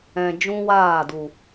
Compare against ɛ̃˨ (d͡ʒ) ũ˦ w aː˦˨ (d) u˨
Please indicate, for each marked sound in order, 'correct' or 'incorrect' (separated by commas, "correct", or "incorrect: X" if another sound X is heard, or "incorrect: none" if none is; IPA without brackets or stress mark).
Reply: correct, correct